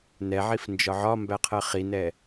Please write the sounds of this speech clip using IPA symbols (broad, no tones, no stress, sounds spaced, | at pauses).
n ɛ ʕ i f n d͡ʒ ɒ ʕ ɒ m b æ qʰ ɜ χ i n ɛ